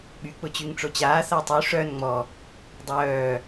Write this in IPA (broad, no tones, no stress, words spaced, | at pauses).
ɓy k͡pʊt͡ɕyŋʈ͡ʂot͡ɕaː θatˤy ʂœn ŋ͡mɔ | dˤœː